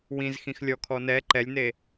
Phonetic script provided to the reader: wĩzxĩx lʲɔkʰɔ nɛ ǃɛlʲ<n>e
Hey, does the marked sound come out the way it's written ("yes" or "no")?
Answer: yes